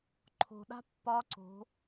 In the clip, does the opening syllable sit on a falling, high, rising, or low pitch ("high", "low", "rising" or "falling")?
low